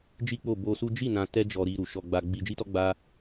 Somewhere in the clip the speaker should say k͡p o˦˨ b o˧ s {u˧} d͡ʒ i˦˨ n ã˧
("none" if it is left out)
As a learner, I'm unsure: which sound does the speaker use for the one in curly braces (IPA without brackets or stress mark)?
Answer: u˦